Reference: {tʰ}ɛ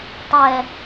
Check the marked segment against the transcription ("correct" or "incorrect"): incorrect